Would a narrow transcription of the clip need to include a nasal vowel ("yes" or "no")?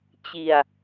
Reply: no